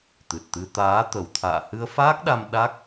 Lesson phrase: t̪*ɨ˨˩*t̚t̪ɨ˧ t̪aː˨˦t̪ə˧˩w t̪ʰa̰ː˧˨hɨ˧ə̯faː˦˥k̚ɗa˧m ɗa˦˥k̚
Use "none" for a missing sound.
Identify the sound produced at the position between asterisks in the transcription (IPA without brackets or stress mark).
ɨ˨˩